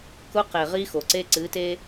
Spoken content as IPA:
k ʊ˦ q e˨ ʁ i˦ x o˨ ǀ e˦ ǀ ɨ˨˦ t e˦

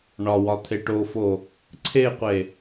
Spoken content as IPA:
ɳ ɒ w ɒ t̪ʰ e ʈ o f o | ǀʰ e qʷ e

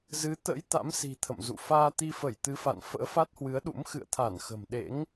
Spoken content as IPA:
z ɨ˨˦ t̪ ə̰˧˥ j t̪ a̰˧˥ m s i̤˨˩ t̪ʰ ə̰˧˨ m z ṵ˧˨ f aː˧ t̪ i˧ f ə˧˩ j t̪ ɨ˨˦ f a̰˧˨ n f ə̰ː˧˥ f a˦˥ t̚ h w ɨ˨˦ ə̯ ɗ ṵ˧˥ m x ɨ̰˧˨ ə̯ t̪ʰ a˧˩ n x ə̤˨˩ m ɗ ḛ˧˥ ŋ

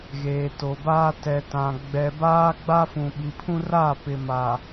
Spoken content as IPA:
ɣ eː˨ t o˨ b aː˦ t ɛ˨ t ã˨ ɡ͡b ɛ˨ b aː˦ ɡ͡b a˦ f ũ˨ ɓ i˨ pʰ ũ˦ r a˦˨ p ɪ˨ m a˨

